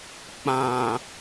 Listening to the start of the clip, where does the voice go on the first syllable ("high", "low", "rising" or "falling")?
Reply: low